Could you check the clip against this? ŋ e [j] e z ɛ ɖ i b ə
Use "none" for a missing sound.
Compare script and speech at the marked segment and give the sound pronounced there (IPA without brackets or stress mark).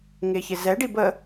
ç